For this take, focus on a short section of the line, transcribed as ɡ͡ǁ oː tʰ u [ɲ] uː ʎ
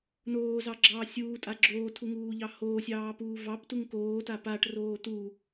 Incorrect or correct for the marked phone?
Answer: incorrect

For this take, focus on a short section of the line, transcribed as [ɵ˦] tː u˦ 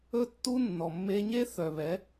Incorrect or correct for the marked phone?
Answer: correct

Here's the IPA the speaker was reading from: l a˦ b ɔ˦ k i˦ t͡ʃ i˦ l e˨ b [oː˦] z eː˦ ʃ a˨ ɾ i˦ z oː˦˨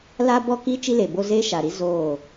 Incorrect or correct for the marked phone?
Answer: incorrect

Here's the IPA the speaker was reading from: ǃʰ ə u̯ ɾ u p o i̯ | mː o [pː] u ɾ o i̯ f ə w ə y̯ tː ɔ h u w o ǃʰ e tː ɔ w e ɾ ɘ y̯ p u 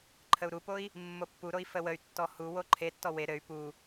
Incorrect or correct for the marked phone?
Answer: correct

